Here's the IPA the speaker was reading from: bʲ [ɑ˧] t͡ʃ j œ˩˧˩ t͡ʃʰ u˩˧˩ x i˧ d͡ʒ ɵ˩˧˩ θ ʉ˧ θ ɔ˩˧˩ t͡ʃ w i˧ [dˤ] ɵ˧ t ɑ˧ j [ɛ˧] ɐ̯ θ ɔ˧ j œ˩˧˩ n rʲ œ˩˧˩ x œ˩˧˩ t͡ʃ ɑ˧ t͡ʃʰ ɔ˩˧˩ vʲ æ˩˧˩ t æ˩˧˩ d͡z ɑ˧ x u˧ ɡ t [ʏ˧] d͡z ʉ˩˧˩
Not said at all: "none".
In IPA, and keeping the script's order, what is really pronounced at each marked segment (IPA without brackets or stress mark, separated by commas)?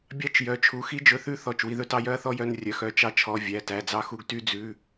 ɑ˧, ð, œ˧, y˧